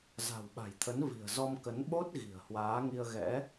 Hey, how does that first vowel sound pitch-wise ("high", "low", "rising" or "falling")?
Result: low